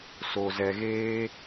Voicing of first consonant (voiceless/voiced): voiceless